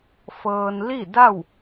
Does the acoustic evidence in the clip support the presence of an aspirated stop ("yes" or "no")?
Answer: no